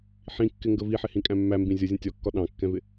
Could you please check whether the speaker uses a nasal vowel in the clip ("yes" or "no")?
yes